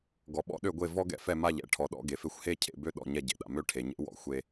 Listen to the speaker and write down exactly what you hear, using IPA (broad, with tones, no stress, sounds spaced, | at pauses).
ɡ ɔ˩ ɓ ɔ̰˥ ɗ ø˥˩ ɡʷ e˥˩ v ɔ˥ ɡ ɛ̰˥˩ f ɛ˥˩ m a˥˩ ʎ ɛ̰˥˧ ʈʰ ɔ˩ ɗ ɔ̰˥˧ ɡ e˩ f e˥ xʷ h e˥˧ cʰ ḛ˥˩ b ø˥˧ ɗ ɔ̰˥˩ ɲ ɛ˥˩ ɟ ḛ˩ ɗ a̰˩ m ø˥˧ ʈʰ e˩ ɲ ḛ˥ w ɔ̰˩ xʷ e˥˧